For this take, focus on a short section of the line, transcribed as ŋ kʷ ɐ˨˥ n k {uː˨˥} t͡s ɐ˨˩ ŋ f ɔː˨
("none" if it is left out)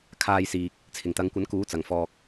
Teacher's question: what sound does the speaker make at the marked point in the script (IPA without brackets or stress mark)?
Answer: uː˨˥